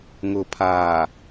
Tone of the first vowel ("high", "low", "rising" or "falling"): low